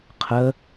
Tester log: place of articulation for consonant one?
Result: uvular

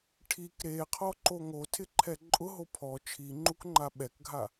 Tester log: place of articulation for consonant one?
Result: retroflex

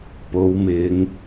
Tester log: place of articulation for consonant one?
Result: labial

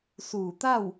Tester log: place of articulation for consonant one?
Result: alveolar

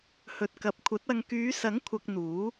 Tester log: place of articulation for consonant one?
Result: glottal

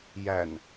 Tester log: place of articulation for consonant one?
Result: palatal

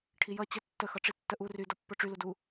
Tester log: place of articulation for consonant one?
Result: retroflex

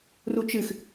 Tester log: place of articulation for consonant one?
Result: alveolar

